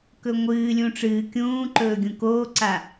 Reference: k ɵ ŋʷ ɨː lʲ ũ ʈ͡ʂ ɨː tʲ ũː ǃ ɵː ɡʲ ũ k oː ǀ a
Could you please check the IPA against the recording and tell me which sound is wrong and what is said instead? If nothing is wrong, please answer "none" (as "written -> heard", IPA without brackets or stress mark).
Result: tʲ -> kʲ